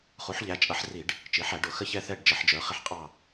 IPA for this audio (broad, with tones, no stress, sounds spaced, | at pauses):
χ u˩˧ ħ ʎ æ˩˧ t͡ʃʼ ʌ˩˧ ħ r i˧˩˧ ɖ | t͡ʃ i˩˧ ħ æ˧˩˧ ɖ ʊ˧˩˧ x ə˦˨ ç ɛ˦˨ θ ɛ˦˨ ɖ d͡ʒ ə˧˩˧ ħ d͡ʒ ə˞˩˧ χ ɪ˦˨ ħ qʼ ɑ˦˨